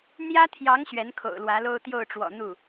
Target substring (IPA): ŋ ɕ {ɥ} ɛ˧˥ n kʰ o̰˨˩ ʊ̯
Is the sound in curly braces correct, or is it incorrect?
correct